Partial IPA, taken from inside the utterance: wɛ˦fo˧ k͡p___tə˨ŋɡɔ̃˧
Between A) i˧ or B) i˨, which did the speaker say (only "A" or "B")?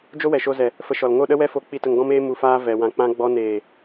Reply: B